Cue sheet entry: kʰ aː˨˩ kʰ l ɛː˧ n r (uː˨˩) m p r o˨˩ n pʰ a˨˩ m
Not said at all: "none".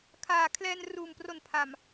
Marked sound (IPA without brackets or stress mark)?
uː˨˩